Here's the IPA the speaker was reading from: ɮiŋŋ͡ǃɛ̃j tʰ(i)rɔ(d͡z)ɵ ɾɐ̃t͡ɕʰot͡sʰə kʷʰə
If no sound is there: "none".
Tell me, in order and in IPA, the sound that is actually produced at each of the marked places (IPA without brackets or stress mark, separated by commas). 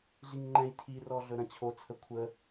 i, ɮ